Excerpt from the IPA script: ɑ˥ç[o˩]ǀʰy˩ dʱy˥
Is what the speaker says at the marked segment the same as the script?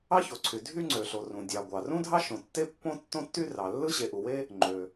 yes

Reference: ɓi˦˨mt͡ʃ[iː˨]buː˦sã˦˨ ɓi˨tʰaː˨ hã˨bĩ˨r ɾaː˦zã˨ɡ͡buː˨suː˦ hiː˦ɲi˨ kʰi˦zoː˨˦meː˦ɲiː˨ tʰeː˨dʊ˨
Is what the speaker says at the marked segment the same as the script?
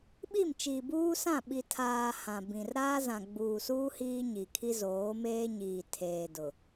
yes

